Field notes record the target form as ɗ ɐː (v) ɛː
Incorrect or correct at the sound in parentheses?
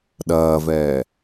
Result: correct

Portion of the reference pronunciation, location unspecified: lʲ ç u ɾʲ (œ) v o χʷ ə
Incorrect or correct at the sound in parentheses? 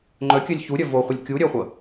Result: correct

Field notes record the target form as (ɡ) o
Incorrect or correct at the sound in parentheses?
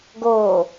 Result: correct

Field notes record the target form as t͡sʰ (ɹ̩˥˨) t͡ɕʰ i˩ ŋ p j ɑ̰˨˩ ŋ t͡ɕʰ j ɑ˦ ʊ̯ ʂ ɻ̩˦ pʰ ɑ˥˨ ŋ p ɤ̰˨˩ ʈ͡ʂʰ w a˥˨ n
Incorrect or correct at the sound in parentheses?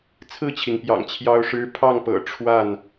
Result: correct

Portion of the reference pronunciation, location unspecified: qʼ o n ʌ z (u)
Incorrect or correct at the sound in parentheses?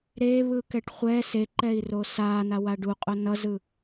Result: incorrect: ɯ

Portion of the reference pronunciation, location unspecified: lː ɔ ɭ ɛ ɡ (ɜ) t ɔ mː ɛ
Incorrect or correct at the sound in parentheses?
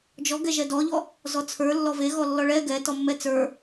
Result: incorrect: ɛ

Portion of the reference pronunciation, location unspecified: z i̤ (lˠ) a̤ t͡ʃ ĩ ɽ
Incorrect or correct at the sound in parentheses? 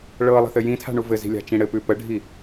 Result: incorrect: lʲ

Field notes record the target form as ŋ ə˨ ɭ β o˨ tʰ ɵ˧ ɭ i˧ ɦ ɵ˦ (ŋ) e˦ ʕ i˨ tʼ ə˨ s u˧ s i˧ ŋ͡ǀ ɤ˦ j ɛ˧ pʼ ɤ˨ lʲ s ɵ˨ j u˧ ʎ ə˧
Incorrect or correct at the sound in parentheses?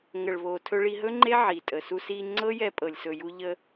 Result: incorrect: ŋ͡ǃ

